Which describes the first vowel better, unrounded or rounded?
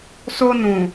rounded